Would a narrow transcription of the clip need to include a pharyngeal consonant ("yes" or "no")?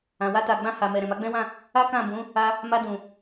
no